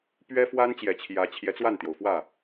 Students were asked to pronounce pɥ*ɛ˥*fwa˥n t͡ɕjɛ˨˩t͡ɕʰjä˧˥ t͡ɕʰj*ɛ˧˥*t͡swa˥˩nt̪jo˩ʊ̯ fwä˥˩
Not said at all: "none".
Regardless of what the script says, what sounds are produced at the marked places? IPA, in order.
ɛ˥, ɛ˧˥

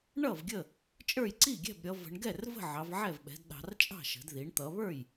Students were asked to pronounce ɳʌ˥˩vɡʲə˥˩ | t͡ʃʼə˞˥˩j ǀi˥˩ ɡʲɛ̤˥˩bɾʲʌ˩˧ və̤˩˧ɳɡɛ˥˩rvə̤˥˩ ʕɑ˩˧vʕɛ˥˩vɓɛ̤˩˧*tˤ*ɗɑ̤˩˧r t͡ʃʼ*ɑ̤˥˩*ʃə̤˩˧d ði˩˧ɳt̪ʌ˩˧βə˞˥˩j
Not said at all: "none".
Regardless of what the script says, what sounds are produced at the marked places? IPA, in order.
d, ɑ̤˥˩

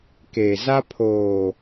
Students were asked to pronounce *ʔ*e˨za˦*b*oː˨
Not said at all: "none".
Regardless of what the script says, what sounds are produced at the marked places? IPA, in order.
k, pʰ

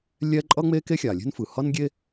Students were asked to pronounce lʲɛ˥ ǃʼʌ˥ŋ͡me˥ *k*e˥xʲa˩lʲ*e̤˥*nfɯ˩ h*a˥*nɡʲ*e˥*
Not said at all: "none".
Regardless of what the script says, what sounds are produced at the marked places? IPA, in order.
k, e̤˥, ʌ˥, e˥

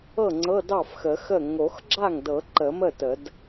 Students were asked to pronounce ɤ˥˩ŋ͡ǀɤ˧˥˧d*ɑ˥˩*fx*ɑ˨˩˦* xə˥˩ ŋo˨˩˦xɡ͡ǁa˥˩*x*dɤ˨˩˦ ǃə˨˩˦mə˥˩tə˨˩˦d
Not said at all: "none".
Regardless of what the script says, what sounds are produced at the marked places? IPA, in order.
ɑ˥˩, ə˨˩˦, ŋ

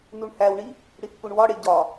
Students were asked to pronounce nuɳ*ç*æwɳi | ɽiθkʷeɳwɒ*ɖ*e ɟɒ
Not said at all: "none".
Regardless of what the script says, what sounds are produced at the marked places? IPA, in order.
h, ɽ

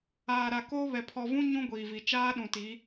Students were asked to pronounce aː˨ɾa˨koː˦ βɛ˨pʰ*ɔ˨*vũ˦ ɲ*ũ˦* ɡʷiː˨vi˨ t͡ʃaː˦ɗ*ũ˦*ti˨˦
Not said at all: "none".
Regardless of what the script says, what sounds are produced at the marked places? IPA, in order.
ɔ˨, ũ˦, ũ˨

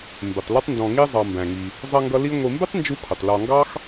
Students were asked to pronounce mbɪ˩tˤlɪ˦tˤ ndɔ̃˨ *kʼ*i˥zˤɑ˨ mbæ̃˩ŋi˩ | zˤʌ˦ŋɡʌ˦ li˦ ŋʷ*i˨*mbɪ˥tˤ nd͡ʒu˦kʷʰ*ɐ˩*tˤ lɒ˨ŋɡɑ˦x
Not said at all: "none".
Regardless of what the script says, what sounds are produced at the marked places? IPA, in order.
ŋ, i˨, ə˩

